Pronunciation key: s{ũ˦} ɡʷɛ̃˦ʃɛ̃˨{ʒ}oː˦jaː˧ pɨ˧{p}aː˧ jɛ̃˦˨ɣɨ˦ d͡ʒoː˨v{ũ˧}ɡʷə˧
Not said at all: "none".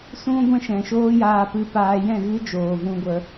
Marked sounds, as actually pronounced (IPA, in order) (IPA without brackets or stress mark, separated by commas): ũ˦, ʃ, p, ũ˦